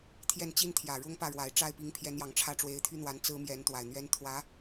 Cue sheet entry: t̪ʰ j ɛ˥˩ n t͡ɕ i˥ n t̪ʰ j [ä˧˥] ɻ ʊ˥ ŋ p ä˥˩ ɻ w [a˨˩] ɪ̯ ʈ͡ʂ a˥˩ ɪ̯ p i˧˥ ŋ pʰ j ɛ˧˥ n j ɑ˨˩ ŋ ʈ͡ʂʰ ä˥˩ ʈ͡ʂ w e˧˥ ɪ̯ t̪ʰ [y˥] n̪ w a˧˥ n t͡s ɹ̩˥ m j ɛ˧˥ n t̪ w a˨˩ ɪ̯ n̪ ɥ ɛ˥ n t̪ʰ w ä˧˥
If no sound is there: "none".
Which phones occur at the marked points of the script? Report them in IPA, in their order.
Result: ä˨˩, a˨˩, y˥

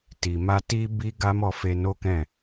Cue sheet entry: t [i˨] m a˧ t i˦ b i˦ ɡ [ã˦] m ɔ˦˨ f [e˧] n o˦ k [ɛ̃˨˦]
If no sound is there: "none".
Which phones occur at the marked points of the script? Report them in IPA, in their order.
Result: i˨, a˦, e˧, ɛ̃˦˨

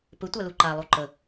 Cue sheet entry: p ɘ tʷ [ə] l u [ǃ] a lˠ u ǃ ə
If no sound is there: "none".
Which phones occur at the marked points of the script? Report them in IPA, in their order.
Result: a, ǃ

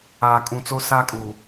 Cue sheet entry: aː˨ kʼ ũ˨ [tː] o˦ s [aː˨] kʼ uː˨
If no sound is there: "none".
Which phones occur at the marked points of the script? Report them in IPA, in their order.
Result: t͡s, aː˦

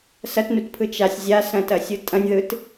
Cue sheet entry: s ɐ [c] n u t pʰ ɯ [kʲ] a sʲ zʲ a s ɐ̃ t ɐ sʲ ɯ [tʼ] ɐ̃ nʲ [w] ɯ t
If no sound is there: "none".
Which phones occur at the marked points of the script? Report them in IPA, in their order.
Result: t, t͡ʃ, tʼ, ð

